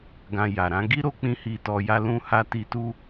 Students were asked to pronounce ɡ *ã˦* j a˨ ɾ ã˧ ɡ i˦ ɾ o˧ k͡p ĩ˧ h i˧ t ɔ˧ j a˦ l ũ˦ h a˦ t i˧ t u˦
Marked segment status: incorrect: ã˧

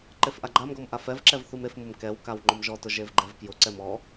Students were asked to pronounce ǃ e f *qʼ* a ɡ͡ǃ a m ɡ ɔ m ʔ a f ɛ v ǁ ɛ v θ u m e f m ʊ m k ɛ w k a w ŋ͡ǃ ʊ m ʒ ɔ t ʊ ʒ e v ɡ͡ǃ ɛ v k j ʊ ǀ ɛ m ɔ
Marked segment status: incorrect: ʔ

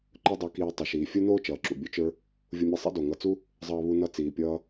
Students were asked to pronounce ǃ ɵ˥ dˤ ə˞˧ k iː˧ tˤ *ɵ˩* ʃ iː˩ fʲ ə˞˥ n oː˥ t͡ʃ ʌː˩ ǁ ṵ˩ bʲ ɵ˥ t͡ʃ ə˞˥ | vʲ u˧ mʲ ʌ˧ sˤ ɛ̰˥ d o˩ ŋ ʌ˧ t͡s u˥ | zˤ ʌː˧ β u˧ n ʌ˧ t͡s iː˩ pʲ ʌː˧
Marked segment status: correct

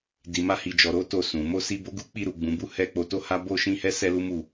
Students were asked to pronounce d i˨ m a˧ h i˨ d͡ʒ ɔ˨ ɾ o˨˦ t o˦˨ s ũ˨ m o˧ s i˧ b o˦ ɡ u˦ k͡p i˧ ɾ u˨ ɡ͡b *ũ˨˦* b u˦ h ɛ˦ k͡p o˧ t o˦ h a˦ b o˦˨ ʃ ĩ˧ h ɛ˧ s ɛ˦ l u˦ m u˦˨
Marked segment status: correct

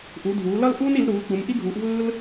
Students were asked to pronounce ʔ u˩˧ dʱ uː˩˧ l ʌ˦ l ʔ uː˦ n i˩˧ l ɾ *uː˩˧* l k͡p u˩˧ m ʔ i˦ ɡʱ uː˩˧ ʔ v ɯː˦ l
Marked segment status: correct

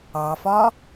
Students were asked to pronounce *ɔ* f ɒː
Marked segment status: incorrect: ɑ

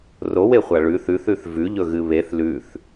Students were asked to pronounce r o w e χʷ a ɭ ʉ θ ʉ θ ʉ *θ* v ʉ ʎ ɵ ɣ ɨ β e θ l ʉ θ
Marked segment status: correct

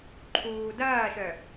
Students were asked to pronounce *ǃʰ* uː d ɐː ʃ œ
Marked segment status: correct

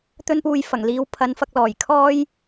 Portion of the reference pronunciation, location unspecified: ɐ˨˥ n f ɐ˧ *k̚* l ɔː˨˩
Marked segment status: correct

